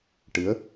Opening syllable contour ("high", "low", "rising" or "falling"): rising